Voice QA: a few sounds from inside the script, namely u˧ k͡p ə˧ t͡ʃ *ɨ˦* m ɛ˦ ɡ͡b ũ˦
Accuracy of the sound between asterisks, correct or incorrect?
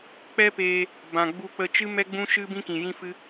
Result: correct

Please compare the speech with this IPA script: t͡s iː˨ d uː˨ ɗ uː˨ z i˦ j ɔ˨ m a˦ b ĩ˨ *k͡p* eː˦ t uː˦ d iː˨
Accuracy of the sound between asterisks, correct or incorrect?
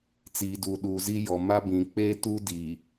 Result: correct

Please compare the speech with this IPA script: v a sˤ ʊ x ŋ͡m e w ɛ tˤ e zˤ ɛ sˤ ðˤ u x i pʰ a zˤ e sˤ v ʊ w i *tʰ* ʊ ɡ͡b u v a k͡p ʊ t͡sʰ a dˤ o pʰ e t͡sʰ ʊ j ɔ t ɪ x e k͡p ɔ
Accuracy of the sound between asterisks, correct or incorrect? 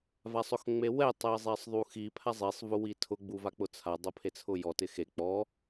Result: correct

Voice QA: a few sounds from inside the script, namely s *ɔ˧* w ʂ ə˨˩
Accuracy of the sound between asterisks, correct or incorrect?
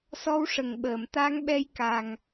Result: correct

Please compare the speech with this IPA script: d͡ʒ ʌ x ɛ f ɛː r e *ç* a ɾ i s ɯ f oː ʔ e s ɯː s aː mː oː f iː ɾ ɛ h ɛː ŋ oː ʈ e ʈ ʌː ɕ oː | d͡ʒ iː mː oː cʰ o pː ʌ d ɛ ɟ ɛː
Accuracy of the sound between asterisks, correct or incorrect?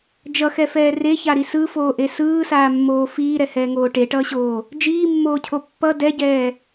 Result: correct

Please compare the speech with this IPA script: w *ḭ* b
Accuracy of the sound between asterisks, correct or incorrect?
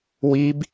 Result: incorrect: i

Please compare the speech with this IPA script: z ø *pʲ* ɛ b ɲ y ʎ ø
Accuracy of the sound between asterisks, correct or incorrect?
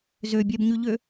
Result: incorrect: bʲ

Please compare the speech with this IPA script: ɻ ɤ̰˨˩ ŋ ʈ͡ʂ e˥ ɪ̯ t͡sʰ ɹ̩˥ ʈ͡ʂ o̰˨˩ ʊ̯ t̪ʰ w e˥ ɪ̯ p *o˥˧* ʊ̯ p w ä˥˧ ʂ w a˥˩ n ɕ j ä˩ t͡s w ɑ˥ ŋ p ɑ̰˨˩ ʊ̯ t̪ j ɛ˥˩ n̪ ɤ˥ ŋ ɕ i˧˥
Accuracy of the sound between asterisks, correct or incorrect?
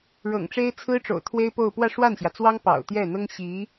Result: correct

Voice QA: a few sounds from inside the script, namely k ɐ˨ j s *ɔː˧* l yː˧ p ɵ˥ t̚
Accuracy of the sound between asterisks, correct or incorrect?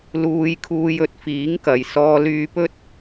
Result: correct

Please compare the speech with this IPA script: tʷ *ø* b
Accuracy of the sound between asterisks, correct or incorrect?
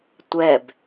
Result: incorrect: ɛ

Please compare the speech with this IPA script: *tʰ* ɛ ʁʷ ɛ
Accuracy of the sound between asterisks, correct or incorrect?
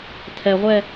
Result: correct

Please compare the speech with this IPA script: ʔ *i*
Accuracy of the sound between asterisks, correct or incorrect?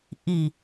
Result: correct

